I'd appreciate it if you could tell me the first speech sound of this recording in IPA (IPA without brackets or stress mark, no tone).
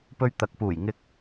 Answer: p